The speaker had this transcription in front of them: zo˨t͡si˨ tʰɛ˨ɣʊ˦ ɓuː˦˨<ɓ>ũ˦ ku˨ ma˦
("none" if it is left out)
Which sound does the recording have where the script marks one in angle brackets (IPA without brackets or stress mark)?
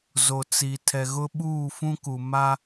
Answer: f